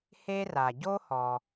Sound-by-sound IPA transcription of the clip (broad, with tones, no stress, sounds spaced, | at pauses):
h e˥ r a˩ ɟ o˥ h ɔ˩